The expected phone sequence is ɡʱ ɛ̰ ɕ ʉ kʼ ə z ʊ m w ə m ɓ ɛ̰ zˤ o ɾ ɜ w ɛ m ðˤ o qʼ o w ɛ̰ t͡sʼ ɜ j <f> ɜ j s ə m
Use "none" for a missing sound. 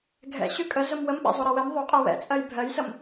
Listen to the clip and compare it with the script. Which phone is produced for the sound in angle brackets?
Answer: bʱ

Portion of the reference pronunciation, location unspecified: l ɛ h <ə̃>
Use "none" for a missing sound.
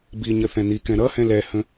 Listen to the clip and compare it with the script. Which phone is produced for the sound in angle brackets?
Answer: ə̃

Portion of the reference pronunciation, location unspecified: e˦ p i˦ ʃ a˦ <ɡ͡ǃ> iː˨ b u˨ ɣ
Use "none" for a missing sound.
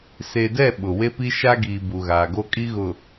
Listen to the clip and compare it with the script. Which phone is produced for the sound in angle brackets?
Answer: ɡ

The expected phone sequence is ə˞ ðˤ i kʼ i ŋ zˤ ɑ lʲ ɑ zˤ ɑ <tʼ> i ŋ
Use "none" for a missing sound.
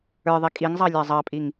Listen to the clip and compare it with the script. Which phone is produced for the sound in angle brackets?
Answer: pʼ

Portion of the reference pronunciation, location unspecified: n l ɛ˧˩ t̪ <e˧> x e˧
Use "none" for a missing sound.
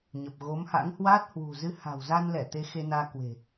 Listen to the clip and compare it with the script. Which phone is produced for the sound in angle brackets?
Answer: e˧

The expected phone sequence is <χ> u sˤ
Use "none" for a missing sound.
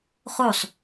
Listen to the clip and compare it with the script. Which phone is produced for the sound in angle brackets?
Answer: χ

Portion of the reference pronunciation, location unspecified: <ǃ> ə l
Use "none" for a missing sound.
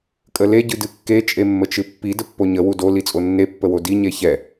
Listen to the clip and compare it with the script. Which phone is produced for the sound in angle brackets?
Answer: kʼ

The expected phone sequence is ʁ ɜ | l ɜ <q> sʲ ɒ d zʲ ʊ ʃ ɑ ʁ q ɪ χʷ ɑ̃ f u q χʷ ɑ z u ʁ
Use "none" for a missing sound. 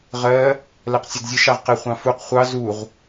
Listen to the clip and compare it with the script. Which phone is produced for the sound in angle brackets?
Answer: q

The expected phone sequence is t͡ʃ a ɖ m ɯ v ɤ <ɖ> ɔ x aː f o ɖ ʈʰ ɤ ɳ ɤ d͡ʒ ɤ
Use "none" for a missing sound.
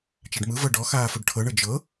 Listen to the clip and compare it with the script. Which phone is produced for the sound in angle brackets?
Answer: ɖ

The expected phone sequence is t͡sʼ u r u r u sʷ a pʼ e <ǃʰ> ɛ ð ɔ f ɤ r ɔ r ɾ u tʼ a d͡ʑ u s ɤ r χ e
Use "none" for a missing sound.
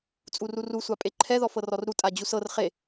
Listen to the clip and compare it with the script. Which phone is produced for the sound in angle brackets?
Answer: ǃʰ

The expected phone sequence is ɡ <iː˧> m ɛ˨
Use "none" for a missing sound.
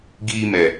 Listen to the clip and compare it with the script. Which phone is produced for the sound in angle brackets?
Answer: iː˧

